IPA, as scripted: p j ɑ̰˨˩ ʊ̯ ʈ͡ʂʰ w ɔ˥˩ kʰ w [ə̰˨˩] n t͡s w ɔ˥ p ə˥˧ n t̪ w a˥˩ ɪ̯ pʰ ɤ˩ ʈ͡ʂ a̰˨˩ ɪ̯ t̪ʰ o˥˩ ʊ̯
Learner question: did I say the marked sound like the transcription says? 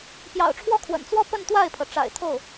yes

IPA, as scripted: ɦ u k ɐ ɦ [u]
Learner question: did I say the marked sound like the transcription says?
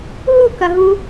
yes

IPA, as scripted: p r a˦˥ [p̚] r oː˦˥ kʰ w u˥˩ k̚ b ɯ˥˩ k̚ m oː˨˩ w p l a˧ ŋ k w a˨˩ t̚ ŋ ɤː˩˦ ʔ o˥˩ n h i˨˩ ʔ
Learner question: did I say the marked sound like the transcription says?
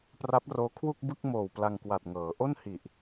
yes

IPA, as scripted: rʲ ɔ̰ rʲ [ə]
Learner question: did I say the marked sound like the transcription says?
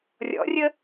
yes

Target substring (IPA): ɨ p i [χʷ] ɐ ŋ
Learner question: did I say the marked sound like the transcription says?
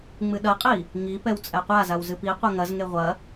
no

